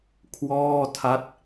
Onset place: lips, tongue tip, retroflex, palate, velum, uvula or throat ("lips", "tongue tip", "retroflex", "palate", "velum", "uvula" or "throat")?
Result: velum